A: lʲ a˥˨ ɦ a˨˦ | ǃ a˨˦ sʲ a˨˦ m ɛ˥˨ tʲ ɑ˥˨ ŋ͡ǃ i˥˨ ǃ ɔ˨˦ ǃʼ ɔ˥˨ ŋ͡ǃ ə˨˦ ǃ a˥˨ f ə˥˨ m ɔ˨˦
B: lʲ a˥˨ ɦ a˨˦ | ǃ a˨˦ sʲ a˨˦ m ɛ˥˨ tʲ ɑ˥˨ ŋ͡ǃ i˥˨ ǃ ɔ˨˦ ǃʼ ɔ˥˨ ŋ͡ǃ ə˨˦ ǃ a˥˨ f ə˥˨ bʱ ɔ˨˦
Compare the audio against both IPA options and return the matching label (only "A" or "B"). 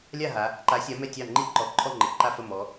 A